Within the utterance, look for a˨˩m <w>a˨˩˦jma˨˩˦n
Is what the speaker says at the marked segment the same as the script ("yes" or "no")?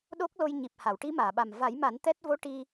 no